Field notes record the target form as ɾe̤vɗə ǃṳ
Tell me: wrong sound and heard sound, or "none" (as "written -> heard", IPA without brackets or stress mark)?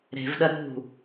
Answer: ǃ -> ɾ